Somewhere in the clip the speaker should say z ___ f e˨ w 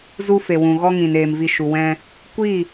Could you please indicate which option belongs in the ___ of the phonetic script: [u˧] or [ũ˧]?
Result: u˧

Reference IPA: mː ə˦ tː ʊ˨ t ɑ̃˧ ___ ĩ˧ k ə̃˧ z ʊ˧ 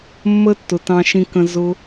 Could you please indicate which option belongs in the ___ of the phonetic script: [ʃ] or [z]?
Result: ʃ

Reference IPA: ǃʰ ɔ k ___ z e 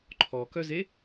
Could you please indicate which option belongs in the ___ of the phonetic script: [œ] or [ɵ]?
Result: œ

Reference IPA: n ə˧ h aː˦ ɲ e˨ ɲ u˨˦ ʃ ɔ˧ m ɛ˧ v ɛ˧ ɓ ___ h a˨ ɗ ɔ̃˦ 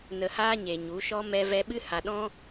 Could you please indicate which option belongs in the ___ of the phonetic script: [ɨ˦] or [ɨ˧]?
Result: ɨ˦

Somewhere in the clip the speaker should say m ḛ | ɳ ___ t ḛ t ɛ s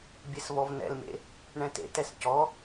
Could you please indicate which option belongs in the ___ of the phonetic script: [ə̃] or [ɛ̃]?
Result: ɛ̃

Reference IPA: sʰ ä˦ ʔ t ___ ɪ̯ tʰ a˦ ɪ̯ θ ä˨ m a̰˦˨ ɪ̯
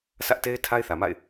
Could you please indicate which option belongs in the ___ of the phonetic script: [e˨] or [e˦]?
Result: e˦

